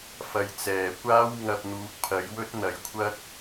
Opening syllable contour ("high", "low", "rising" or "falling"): low